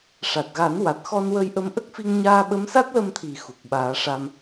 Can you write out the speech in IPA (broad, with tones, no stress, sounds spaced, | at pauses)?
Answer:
ʂ a˨˩ t̚ ɣ a˨˩˦ n w a˨˩ t̚ x ɔ˧ n w ə˧ j ʔ ə˧ m ʔ ə˦˥ k̚ f i˧ ŋ ɲ aː˧ ɓ ə˧˥ m s a˦˥ t̚ l ə˧ m t̪ʰ i˨˩ x u˨˩ k̚ ɓ aː˨˩˦ ʂ a˧ m